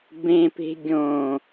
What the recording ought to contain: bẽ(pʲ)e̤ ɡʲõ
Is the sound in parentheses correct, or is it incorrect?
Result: incorrect